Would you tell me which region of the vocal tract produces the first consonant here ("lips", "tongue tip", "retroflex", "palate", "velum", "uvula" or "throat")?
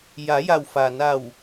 palate